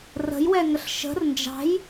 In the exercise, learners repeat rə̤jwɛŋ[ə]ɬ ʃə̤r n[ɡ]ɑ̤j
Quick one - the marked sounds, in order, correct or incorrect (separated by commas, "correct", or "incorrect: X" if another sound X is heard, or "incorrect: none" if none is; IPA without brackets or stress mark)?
correct, incorrect: d͡ʒ